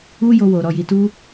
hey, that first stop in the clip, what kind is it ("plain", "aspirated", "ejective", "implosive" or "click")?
plain